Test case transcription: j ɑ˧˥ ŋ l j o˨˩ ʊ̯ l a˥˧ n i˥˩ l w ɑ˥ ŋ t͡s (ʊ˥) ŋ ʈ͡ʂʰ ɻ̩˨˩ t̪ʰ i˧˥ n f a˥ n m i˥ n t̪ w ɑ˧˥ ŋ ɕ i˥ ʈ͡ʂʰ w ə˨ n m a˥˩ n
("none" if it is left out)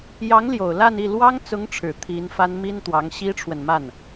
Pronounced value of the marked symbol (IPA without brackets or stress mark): ʊ˧˥